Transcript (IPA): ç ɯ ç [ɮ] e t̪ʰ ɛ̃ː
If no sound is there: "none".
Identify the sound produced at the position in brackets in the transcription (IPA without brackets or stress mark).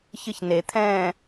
n